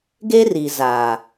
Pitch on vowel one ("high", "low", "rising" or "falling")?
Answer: high